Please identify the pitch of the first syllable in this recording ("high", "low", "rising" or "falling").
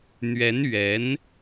rising